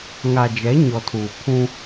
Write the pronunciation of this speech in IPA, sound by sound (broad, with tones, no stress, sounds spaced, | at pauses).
ŋ a˨ d͡ʒ ɛ˨˦ ɲ ɔ˨ tʰ uː˨ pʰ ũ˦